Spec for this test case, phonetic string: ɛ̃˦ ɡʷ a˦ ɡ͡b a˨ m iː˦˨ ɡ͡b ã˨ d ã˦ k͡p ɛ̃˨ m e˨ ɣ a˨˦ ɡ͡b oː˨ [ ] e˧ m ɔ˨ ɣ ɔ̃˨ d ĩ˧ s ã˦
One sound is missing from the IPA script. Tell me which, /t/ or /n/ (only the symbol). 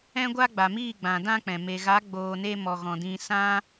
n